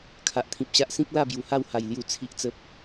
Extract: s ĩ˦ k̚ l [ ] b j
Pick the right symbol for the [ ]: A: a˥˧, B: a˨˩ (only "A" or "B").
A